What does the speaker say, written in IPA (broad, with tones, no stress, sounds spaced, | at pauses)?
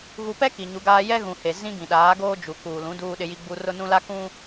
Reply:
ɣ u˨ p ɛ˦ k i˨ ɲ u˨˦ ɡ aː˦ j ɛ˦ ɣ ũ˨ h e˨ z ĩ˦ ɡ ĩ˨ ɗ aː˨˦ ɡ oː˦ d͡ʒ u˨ k uː˨ l ũ˨˦ d uː˦ ɗ ɪ˦ j i˦ ɡ͡b u˦ r ʊ˦ n ũ˦ l a˦ k ũ˦